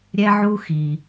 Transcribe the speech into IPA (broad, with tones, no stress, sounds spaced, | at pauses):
ɾʲ ɛ˧ ʕ u˧ x i˩